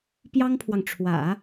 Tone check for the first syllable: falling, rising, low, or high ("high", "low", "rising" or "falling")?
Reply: high